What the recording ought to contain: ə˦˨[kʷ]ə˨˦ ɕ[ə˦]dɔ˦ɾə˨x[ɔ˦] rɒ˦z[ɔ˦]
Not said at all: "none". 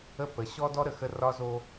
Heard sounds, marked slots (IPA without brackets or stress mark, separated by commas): p, ɔ˦, ə˦, o˦